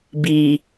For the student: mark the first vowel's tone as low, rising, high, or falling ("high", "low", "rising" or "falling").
low